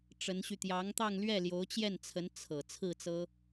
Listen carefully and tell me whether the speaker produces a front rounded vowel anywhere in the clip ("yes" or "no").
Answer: yes